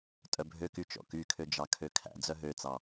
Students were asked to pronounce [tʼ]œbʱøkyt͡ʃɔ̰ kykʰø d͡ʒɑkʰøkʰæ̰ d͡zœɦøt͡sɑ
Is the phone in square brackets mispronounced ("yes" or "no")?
no